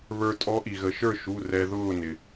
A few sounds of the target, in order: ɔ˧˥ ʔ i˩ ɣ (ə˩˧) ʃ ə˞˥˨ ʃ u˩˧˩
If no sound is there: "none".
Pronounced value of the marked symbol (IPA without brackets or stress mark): ə˩˧